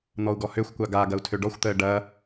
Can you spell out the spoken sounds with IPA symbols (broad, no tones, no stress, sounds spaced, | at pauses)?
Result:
n̪ ɔ u̯ ɡ ɔ h ø xʷ kʷ a ɡ a ɡ ɐ u̯ tʰ ø ɖ ɔ xʷ t̪ əː ɖ ɐ